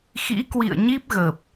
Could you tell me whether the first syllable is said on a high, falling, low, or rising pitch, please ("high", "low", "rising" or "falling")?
rising